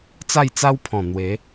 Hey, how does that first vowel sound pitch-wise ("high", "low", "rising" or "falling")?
falling